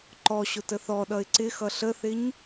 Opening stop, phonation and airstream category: click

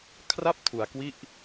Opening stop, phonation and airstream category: aspirated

